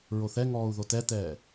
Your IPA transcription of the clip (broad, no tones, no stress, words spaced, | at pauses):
ɹoθɛŋɔːu̯ ðotɛtɛː